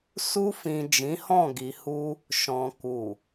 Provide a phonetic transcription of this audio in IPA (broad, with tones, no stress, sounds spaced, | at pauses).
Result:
s u˧ f ĩ˨ d͡ʒ ĩ˨˦ h ɔ̃˦˨ ɡ i˨ h u˧ | ʃ ɔ̃˨ k u˨